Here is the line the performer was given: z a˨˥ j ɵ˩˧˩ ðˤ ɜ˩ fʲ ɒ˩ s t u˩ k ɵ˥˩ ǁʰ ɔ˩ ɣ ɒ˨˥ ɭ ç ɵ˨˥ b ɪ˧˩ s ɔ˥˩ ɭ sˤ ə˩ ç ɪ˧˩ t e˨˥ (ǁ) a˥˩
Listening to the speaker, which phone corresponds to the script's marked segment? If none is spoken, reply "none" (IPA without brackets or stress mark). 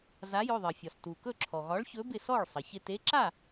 ǁ